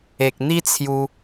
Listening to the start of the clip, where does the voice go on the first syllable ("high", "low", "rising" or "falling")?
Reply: low